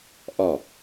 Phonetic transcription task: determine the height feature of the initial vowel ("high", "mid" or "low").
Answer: low